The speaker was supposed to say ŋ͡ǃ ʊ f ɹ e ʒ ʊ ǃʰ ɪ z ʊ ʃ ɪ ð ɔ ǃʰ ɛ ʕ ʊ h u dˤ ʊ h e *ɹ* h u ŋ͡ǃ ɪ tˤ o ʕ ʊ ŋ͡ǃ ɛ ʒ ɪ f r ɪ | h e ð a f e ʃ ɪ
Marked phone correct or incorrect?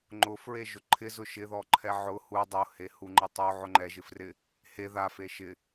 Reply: incorrect